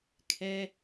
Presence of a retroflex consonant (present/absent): absent